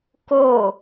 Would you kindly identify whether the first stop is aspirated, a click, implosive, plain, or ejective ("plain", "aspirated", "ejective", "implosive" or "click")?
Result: plain